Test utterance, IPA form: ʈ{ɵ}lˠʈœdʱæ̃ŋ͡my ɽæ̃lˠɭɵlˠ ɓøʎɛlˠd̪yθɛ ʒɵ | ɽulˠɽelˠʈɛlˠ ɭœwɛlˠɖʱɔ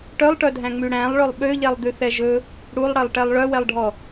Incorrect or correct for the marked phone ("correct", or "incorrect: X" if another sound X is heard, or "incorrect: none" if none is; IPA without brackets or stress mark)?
incorrect: œ